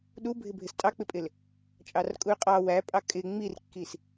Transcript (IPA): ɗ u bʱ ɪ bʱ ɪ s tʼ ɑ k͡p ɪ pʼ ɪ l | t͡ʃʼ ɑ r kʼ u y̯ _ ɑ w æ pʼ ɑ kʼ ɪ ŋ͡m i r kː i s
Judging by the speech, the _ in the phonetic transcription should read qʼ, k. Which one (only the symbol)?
qʼ